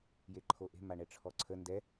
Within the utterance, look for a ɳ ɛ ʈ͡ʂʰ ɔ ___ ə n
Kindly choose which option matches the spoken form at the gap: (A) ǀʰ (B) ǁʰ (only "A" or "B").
A